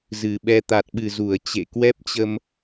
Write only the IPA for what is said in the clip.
z ɨ˨˩ ɓ ɛ˧ t̪ a˨˩ t̚ ɓ ɨ˨˩ z u˧˩ ə̯ t͡ɕ ḛ˧˨ k w ɛ˦˥ p̚ t͡ɕ ə˧ m

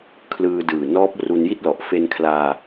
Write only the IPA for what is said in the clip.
kʰ l ɯː˧ d ɯː˨˩ n ɔː˦˥ p̚ r u˧ n j i˥˩ t̚ l ɔ˨˩ ʔ f e˧ n kʰ l aː˧

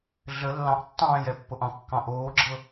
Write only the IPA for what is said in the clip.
ɮ ə lː ɑ̃ ʔ tː ɑ̃ː j ɛ pː o ʔ ɑ̃ kː ɑ̃ ʔ oː ɡ͡ǁ ɤ

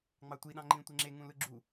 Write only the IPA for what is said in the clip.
ŋ͡m ɑ tʷ i ɗ ɑ̃ ŋ͡ǃ ĩ tʷ e ŋ͡ǁ e ŋ ũ l ɯ ɡ͡ǁ u

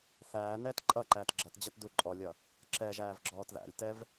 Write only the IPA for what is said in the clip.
θ æː n ɛː t ǃʼ ʌ ǃ æː t ɡ͡ǁ ʌ t d͡ʑ ʌ t d u ǃʼ ɔ lʲ ʌ | ǁ ɛ ʒ æː v ɡ͡ǁ ɔː t ð æ̰ lʲ t ɛ v

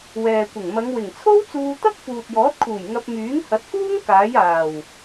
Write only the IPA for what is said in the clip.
w ɛː˨ kʷ ɪ˨˩ ŋ m ɐ˨˧ ŋ w ɪ˨˩ ŋ t͡sʰ o˥ w t͡s uː˧ t̪ ɐ˥ k̚ f uː˨ t̚ j ɔː˨˥ t̚ kʰ uː˨˩ j ŋ ɐ˧ p̚ m yː˨˥ ŋ h ɐ˨˥ t̚ k uː˥ ŋ k aː˨˥ j aː˨˩ w

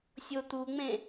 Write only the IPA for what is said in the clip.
sʲ o t̪ u ŋ͡m ẽ

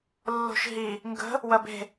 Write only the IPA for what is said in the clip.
lː o̤ ʃ ɦ i | ŋ ɡ ə̤ | w ɐ b e̤

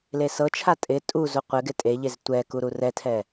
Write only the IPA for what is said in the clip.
l e s ɤ t͡ʃʰ a tʼ ɪ tʼ u z u qʷ ɪ ɡ ɪ tʼ e ʎ e z tʷ ɛ k u ɾ u r ɛ tʰ ɛ

